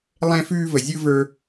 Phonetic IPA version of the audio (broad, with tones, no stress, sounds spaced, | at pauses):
lˠ ɛ̃˧ f ʉː˧ v ə˩ zʲ ɯ˧ v ə˞˧